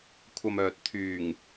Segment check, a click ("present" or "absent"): absent